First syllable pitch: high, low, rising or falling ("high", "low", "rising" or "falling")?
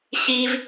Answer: high